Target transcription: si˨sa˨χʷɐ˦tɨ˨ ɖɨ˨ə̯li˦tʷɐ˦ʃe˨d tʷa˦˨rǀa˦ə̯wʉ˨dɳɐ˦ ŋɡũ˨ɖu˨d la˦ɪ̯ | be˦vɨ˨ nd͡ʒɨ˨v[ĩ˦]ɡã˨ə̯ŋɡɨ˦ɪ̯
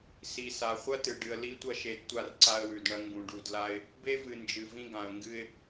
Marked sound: correct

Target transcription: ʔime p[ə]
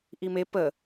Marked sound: correct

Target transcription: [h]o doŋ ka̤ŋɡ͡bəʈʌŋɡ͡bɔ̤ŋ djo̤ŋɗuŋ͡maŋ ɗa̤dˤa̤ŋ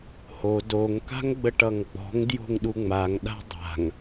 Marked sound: correct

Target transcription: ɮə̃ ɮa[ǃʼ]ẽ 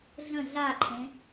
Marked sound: incorrect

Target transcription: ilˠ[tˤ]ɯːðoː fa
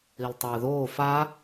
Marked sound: correct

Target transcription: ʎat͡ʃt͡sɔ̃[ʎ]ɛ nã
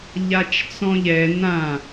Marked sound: correct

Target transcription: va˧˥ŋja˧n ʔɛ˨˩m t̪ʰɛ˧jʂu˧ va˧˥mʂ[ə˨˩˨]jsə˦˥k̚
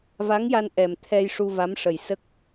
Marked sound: incorrect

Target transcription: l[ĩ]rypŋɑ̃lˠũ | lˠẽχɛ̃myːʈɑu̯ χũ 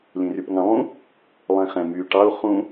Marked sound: correct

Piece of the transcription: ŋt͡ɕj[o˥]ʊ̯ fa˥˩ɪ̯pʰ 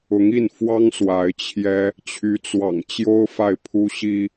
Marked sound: correct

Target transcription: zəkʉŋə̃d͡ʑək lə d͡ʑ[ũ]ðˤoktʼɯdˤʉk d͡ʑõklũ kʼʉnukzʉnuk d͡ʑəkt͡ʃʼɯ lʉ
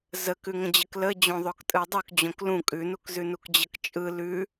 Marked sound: incorrect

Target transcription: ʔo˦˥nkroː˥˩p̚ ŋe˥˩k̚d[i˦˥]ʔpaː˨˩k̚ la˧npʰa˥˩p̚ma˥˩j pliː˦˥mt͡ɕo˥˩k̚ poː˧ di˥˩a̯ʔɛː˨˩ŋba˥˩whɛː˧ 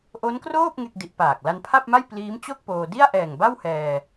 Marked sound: correct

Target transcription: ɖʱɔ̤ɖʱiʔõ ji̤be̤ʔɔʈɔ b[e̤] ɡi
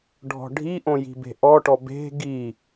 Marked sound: correct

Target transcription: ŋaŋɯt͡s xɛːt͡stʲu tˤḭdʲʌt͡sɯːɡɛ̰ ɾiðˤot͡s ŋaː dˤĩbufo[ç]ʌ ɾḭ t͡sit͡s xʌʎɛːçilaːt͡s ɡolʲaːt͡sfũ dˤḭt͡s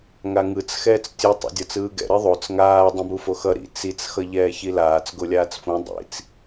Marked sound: incorrect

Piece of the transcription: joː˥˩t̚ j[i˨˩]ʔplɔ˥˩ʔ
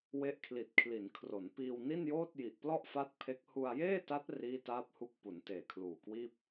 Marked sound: correct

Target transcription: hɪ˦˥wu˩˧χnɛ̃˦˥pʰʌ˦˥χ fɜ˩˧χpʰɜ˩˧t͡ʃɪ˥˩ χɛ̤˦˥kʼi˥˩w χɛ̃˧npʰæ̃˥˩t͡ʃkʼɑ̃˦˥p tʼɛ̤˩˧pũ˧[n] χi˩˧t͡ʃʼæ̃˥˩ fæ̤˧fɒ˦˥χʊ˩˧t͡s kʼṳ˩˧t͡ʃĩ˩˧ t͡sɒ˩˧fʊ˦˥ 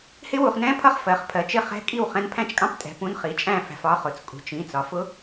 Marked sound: correct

